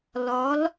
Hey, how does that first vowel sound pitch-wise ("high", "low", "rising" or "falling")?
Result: rising